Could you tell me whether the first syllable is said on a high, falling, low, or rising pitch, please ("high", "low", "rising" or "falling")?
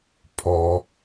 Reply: high